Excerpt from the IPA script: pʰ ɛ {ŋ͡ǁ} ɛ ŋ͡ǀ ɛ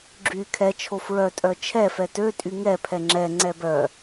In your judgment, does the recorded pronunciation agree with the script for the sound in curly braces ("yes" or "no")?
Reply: yes